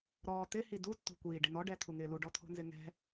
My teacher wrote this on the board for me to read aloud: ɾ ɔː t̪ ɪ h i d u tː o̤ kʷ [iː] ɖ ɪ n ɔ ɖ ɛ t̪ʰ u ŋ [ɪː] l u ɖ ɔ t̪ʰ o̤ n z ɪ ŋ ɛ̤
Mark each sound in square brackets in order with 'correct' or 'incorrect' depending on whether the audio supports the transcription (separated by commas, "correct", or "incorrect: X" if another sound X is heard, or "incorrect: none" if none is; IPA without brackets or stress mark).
correct, correct